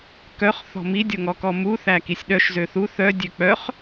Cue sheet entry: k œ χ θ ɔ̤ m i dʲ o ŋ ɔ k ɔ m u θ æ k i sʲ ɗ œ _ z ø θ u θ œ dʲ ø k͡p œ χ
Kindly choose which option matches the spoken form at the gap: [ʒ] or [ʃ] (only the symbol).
ʃ